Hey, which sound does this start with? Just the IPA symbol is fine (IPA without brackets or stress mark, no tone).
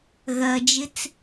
ɣ